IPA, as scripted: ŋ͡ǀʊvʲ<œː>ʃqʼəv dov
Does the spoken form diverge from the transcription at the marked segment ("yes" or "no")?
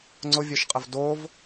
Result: yes